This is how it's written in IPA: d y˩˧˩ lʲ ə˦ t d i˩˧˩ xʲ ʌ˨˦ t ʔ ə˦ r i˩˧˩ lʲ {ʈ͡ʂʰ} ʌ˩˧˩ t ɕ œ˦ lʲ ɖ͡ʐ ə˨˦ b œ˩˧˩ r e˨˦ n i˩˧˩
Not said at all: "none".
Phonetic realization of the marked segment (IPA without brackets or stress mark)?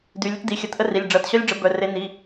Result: ɖ͡ʐ